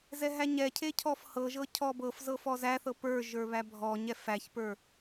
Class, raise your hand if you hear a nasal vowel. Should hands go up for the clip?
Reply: no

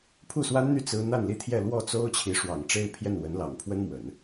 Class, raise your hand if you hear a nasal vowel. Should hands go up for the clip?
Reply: no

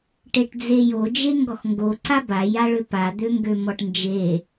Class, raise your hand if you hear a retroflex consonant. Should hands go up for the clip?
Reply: yes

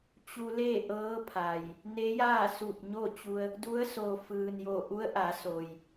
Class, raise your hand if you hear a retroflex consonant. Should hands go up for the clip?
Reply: no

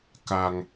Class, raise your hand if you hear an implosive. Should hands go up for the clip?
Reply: no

